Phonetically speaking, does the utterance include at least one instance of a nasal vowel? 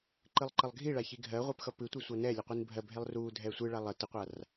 no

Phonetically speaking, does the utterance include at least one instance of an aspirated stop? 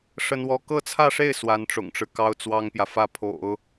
yes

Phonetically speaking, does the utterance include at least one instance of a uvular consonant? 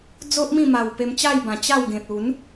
no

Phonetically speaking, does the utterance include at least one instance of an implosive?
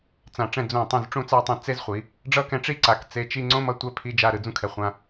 no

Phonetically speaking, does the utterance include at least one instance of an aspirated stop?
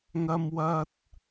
no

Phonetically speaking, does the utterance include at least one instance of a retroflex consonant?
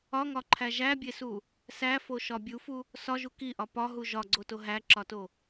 no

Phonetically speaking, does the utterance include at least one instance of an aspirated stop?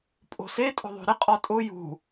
no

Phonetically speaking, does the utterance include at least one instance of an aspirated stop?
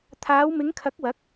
yes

